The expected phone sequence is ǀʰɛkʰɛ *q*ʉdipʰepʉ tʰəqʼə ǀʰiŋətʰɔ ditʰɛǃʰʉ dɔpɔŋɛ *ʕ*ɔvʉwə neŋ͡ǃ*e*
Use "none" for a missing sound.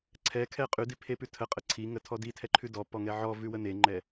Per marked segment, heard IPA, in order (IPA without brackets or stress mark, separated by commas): qʼ, ʕ, ɛ